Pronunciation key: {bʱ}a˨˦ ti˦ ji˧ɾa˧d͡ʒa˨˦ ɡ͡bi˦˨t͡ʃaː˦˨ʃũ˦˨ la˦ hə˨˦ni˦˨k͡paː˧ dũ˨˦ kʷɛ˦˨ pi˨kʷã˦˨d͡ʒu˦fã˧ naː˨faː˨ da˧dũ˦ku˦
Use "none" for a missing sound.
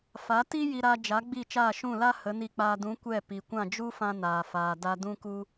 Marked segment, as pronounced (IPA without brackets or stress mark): f